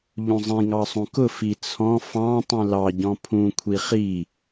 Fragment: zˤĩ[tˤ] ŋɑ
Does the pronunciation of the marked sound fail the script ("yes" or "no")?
yes